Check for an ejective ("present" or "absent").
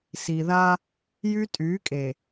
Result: present